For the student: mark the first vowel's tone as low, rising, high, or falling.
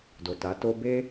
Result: low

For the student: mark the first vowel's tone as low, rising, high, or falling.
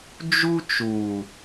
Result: high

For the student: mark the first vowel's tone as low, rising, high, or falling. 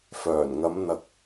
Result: low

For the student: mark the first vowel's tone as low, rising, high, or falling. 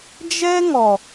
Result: high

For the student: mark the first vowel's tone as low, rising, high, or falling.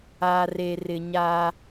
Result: low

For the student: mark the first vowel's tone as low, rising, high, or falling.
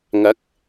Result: rising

